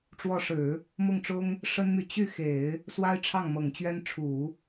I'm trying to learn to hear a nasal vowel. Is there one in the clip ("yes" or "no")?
no